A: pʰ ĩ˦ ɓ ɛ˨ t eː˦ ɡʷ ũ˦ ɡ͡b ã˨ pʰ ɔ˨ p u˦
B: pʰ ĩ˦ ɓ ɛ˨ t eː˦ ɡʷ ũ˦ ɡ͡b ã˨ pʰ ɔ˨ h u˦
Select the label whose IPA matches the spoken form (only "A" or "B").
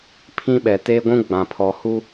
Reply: B